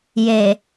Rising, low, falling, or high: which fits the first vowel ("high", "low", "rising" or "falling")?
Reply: low